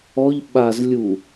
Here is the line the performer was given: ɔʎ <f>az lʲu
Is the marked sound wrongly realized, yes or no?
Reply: yes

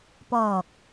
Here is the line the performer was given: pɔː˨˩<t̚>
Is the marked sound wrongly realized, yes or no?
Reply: yes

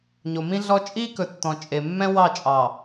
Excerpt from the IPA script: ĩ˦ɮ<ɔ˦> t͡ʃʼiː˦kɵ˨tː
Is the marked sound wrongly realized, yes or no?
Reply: no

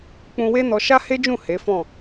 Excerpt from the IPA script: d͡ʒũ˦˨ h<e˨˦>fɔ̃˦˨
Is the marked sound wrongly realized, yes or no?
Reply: no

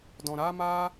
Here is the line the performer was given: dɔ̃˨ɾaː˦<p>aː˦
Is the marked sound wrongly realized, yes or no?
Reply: yes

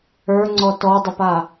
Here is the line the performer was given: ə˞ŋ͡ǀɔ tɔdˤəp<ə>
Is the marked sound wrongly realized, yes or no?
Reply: yes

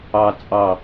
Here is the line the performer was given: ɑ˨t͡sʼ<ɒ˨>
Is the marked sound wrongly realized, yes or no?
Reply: yes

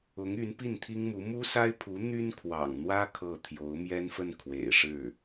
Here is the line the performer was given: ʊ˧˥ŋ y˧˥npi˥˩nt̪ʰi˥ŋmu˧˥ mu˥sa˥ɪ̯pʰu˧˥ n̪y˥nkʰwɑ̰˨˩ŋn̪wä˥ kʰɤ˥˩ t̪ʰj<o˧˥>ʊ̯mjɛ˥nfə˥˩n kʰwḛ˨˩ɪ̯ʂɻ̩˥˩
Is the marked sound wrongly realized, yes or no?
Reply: no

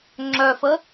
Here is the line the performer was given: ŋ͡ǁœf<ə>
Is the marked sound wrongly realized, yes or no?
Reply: no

